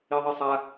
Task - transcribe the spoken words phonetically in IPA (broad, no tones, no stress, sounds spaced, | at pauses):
i ðˤ i sˤ a